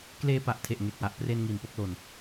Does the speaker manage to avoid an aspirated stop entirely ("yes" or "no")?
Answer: no